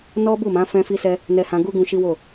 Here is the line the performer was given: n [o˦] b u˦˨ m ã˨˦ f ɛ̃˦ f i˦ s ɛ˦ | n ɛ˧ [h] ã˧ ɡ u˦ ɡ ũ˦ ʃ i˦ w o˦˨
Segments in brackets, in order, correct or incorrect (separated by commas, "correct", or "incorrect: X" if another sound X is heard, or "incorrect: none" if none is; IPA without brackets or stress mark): incorrect: ɔ˦, correct